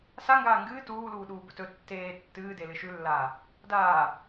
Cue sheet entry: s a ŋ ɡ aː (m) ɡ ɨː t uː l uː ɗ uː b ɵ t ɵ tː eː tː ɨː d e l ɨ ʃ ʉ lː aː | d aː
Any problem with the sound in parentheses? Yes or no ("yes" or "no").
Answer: yes